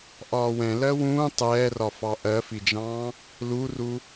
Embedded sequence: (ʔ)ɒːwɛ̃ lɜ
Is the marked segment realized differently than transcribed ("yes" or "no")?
no